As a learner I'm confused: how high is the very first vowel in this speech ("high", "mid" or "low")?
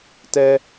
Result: mid